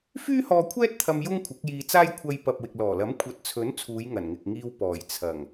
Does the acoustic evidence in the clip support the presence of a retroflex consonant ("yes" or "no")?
no